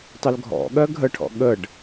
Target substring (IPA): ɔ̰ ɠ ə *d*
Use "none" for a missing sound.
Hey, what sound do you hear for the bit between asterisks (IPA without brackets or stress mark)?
ɖ